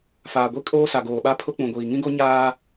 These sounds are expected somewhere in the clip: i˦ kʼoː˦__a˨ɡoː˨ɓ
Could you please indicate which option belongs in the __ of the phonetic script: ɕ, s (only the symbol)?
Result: s